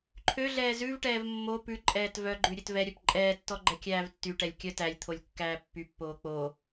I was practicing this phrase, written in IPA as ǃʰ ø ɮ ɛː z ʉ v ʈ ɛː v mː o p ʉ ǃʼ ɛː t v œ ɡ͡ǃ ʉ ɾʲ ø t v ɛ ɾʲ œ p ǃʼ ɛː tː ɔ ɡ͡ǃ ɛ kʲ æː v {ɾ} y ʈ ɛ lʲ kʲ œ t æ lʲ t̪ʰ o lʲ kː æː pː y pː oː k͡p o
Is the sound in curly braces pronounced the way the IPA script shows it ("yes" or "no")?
no